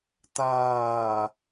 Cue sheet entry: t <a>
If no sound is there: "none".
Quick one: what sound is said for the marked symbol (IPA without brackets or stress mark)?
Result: aː